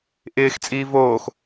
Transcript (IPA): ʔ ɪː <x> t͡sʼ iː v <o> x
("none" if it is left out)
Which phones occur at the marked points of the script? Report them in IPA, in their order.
x, oː

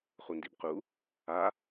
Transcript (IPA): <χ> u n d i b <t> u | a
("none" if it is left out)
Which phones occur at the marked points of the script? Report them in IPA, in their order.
χ, q

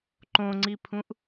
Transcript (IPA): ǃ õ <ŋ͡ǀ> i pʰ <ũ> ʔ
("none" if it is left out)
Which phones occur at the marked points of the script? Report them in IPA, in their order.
ŋ͡ǀ, ũ

